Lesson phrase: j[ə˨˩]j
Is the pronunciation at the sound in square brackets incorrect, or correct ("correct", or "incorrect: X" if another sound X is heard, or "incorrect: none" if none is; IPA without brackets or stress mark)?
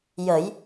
incorrect: ə˨˩˦